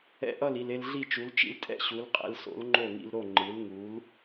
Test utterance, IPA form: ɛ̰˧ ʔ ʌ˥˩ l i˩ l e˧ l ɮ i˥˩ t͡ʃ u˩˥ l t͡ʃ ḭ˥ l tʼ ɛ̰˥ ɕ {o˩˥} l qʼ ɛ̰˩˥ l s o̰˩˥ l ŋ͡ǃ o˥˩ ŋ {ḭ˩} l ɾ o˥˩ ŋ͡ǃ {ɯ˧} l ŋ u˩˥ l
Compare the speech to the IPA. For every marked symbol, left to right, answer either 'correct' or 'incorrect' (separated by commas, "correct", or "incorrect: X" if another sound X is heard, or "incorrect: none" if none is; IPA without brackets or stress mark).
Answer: incorrect: u˩˥, incorrect: ḭ˧, incorrect: ɯ˩˥